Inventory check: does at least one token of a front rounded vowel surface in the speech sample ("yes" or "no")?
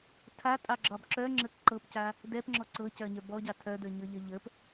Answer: yes